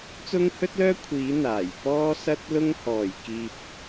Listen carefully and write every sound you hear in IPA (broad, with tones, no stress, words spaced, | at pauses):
t͡sʊ˥ŋhɵ˥t̚lœː˥ kʷʰiː˨˥ n̪aː˨˩j pɔː˥sɐ˥t̚lʊ˥ŋ hɔː˨˩j kiː˧p̚